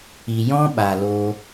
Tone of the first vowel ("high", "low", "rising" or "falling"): low